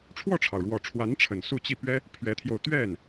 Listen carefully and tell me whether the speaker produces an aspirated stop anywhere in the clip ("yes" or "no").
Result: yes